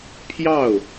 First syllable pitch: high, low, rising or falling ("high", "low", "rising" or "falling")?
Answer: falling